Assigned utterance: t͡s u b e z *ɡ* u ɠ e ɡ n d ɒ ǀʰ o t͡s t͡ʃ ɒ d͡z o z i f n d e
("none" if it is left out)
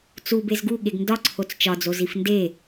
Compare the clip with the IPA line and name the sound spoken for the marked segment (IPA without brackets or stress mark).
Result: ɡ